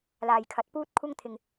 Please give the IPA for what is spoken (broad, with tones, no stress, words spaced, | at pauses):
laː˨j kʰɐ˨˥t̚puː˥t̚kʷʰɐ˥ŋt̪ʰɪ˨ŋ